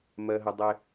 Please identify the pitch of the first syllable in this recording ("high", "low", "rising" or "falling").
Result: low